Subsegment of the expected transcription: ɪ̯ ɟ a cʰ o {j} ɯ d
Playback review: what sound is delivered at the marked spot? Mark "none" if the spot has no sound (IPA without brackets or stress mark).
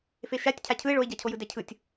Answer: j